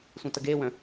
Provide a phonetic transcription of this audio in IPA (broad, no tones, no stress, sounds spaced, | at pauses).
sʷ ə̃ t ə ɡ e w œ̃